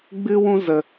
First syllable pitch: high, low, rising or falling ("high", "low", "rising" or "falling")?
high